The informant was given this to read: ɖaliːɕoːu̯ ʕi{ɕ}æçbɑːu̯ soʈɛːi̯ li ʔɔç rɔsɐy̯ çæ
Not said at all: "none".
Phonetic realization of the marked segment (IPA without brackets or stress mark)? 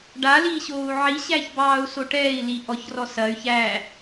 ɕ